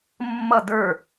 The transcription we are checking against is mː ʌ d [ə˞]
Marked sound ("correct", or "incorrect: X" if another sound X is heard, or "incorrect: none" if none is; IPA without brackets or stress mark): correct